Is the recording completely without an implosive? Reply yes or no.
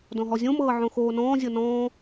yes